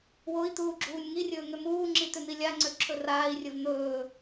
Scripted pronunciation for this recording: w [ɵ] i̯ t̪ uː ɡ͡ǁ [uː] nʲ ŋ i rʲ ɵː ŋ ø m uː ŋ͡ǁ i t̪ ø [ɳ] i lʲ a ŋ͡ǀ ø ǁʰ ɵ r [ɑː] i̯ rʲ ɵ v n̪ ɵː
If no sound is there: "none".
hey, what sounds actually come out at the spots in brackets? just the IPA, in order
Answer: o, uː, n̪, aː

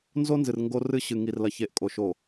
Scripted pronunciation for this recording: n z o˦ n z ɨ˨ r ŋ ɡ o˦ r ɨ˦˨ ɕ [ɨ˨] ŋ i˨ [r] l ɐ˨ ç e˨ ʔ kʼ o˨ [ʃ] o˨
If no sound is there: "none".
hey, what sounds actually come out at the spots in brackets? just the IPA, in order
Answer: ɨ˨, r, ʃ

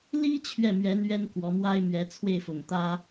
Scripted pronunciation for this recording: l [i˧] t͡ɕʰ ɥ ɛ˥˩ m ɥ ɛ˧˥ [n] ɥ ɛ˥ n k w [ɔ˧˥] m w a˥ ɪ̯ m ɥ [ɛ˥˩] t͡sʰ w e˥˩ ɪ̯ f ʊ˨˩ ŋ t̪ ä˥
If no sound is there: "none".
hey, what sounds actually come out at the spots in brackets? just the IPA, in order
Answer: i˥, n, ɔ˧˥, ɛ˧˥

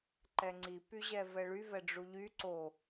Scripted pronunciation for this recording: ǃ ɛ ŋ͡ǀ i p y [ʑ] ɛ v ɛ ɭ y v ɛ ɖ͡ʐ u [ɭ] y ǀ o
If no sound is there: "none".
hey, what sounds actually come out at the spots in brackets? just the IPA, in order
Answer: ʑ, ʎ

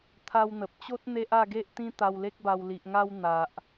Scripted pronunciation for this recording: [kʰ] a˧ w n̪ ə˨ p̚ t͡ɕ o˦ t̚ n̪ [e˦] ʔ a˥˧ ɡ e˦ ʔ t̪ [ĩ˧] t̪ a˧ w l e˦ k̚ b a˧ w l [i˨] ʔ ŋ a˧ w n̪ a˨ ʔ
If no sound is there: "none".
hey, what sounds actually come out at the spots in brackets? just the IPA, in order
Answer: t̪ʰ, e˦, ĩ˦, i˨

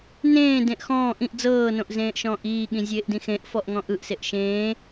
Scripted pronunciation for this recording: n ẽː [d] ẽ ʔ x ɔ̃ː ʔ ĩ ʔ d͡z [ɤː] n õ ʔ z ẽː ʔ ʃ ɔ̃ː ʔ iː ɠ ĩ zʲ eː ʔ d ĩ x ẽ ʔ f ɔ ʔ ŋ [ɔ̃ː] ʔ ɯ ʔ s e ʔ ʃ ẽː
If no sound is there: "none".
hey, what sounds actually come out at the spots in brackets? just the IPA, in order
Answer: d, ɤː, ɔ̃

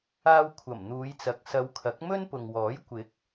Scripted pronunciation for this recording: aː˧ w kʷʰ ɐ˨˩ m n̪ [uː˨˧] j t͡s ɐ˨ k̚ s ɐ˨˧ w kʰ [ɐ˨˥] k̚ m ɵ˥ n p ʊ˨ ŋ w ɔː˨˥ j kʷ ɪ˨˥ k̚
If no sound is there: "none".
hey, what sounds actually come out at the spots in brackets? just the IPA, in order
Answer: uː˨˧, ɐ˨˥

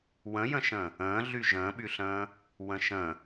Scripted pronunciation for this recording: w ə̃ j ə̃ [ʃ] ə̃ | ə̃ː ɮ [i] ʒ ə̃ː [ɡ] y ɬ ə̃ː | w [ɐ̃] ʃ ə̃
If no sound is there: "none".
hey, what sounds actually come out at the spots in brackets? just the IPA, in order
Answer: ʃ, y, ɓ, ə̃

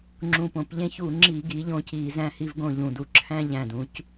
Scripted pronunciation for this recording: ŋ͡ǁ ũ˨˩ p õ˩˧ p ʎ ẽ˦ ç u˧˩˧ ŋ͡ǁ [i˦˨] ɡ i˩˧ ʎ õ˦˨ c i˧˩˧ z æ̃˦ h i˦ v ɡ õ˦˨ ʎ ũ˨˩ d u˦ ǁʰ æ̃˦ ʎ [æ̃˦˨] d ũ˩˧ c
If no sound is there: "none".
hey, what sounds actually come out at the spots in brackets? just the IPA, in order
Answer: i˧˩˧, æ̃˨˩

